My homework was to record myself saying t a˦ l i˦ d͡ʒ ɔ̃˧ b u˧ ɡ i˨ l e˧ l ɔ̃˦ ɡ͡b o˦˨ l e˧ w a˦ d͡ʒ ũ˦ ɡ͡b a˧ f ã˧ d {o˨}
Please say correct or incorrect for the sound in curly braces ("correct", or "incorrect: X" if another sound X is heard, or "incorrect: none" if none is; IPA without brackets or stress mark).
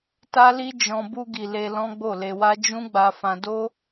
incorrect: o˦